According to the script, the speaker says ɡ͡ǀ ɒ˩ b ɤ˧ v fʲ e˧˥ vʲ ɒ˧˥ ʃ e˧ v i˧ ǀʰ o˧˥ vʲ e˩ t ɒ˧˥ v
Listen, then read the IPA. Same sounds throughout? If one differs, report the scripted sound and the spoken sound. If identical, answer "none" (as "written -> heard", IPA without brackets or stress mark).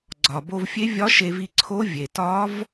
ɤ˧ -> o˧